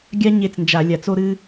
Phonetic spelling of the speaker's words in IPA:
ɡʲa˥ ɲe˥˩t͡snd͡ʒa˧˩˧lʲa˧˩˧t͡s o˥ɾɨ˥

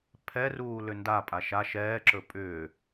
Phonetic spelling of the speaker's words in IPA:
pʰɛruː lʏndapʼa ʃa ʃɛːǁɵ pʼʏː

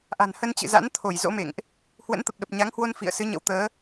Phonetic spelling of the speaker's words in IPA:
ʔa̤˨˩n hə˧nt͡ɕɨ̰˧˨za̰˧˥n t̪ʰo˧˩jzo̰˧˥mḛ˧˨ŋʔ | hwə̰˧˥nt̪ə˨˩p̚ɗə˨˩p̚ ɲa˨˦ŋhwo˧n fḭ˧˨ə̯ sɨ˨˦ɲə̰˧˥w t̪əː˨˦

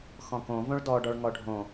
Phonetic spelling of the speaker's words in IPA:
xɔ̃kõ võɭdɔ ɖɔɭŋɔɖʱõ

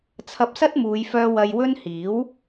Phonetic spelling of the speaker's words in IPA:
t͡sʰɐ˧p̚sɐ˥t̚muː˨˧jfœː˧ wɐ˧jwɵ˥n hiː˨˥w

